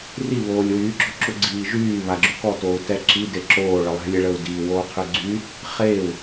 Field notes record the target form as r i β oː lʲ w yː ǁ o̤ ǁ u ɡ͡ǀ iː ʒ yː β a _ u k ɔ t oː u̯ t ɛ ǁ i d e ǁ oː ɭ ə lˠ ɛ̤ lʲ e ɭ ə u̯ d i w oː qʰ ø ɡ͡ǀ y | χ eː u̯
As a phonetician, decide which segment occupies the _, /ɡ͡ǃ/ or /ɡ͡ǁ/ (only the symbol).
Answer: ɡ͡ǁ